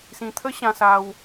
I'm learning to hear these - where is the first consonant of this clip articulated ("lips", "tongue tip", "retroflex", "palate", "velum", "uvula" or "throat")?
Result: tongue tip